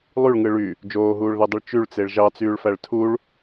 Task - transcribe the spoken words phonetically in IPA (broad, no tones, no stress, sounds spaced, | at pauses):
lˠ y ɭ ŋ ɯ ɭ y | d͡ʒ oː ɦ uː ɭ ð e dˤ ɯ ɭ t͡ʃ y ɭ t͡s e ɭ ʒ ɑ t͡s yː ɭ f æ ɭ tʰ u ɭ